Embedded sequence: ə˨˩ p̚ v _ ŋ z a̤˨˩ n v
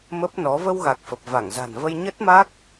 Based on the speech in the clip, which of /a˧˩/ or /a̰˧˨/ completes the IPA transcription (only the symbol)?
a˧˩